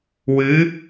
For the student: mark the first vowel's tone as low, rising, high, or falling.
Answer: rising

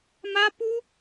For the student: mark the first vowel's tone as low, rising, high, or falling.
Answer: high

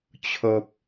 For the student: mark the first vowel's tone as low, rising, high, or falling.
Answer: low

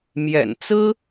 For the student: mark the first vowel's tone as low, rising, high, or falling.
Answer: low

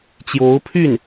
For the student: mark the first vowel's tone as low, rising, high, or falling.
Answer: rising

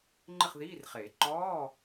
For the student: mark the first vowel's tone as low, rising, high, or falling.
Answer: falling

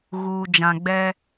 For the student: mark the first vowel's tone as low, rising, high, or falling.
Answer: low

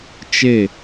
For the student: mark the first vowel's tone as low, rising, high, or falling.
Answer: falling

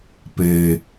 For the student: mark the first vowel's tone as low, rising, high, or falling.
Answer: low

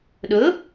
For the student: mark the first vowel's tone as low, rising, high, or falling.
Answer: rising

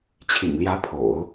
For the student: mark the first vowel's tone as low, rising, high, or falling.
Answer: low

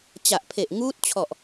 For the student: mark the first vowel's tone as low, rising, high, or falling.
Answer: low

